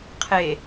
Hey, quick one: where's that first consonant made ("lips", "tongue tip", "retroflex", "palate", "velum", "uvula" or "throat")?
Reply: uvula